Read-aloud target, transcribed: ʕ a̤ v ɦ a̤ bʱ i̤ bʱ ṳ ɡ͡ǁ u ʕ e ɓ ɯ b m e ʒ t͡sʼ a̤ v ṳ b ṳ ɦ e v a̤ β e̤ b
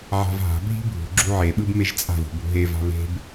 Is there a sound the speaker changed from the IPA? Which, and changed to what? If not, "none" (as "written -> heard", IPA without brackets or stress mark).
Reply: none